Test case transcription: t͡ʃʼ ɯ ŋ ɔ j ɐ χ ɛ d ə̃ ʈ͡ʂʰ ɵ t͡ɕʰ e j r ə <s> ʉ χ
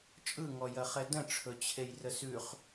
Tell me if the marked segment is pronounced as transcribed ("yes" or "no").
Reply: yes